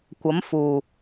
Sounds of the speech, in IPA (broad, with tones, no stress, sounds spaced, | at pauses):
kʷ ɐ˨˥ m f uː˨˩